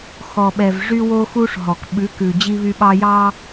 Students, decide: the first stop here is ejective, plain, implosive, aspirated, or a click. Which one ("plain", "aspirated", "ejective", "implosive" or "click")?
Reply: implosive